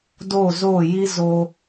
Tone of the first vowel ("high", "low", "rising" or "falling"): falling